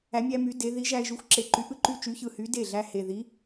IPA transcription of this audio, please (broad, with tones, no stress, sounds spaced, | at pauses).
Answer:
æ˩˧ mʲ æ˧ m y˩˧ d e˩˧ ð i˨˥ ʒ æ˧ ɪ̯ ʒ y˨˥ xʷ ǁ e˨˩ ǃ y˨˥ ʔ ɯ˥˩ ǃ y˥˩ t͡ʃ y˨˥ ç ɯ˨˩ h y˨˥ d e˥˩ ɮ æ˧ h e˨˩ ð i˨˥